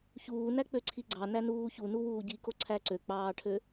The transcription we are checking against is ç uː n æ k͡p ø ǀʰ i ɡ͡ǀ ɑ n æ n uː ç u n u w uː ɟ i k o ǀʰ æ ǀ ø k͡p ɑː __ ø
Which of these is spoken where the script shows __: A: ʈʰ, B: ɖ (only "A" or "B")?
A